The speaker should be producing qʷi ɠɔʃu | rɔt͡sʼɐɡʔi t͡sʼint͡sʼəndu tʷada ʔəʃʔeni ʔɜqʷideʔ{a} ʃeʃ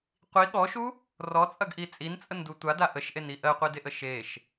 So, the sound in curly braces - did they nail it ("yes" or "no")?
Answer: no